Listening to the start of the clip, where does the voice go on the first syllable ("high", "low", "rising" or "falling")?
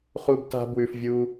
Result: high